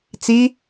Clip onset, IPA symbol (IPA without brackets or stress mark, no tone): t͡s